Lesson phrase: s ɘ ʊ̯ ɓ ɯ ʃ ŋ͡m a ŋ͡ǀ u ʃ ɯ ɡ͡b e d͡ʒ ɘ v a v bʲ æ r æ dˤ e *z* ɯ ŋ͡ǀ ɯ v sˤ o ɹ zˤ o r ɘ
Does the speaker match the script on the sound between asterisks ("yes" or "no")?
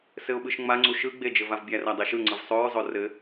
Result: no